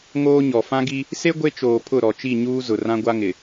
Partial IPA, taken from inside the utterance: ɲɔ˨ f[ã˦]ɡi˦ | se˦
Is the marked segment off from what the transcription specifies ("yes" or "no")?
no